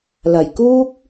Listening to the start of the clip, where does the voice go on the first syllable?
low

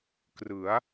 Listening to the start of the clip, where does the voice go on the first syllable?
rising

